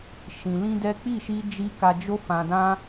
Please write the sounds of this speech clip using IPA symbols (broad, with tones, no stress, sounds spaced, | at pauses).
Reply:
ʃ ĩ˨ l ĩ˧ d ɛ˦ k͡p i˦˨ ʃ i˧ d͡ʒ i˧ k a˧ d͡ʒ o˦ f ã˧ d ã˦